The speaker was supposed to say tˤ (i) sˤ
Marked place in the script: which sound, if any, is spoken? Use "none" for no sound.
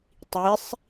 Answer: i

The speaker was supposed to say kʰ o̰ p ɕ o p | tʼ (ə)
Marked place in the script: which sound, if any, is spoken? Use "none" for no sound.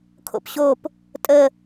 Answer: ə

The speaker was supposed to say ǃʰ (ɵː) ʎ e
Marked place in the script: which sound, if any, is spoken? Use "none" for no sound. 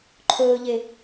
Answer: ɵː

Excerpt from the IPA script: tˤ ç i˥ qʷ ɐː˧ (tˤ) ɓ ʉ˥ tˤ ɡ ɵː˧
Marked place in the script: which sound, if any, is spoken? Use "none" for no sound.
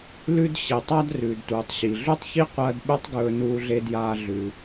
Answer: d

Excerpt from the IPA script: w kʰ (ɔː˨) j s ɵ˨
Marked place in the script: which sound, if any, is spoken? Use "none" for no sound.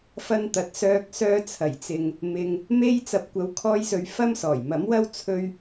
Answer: ɔː˧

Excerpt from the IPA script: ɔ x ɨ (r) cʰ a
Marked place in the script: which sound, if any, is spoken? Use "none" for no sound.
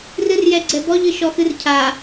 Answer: r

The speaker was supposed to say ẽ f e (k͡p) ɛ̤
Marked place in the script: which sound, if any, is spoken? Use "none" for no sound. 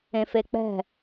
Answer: k͡p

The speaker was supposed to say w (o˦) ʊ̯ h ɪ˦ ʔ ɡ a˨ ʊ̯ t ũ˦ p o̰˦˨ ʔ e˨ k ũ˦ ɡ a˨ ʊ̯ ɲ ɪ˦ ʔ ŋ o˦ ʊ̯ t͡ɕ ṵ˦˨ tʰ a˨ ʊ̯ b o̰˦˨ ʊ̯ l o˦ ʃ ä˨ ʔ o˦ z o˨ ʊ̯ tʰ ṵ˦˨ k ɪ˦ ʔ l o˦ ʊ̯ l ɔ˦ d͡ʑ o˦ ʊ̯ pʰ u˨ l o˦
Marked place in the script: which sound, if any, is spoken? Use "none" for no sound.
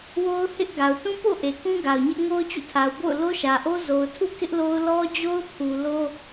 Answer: o˦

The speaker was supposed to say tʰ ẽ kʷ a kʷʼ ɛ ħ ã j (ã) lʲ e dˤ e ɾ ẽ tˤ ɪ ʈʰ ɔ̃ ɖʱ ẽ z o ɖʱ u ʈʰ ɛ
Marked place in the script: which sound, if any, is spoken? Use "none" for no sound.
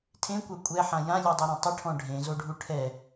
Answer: ã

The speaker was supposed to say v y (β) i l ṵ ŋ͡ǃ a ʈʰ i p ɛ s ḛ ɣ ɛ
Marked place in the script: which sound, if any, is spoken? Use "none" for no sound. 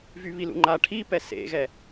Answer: β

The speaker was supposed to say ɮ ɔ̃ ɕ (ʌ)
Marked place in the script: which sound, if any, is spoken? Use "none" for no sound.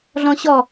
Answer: ɔ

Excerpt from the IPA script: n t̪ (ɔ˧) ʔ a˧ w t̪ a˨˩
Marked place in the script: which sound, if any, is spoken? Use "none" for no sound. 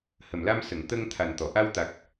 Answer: ɔ˨˩˨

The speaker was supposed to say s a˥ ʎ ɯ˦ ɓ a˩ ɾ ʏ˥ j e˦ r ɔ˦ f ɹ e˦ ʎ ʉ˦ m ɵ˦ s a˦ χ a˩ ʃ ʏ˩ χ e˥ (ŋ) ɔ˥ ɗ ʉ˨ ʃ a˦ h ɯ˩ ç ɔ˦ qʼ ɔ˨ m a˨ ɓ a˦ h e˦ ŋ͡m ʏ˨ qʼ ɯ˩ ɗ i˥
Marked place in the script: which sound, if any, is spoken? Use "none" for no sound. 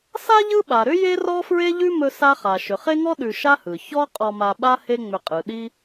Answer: ŋ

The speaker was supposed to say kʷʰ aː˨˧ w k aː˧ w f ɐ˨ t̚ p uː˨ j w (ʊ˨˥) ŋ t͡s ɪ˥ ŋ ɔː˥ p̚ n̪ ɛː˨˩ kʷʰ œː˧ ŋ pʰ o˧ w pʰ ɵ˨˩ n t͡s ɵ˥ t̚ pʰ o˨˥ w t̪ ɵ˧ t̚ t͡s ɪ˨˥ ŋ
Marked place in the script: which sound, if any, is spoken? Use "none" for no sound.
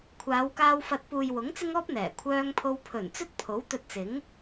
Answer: ʊ˨˥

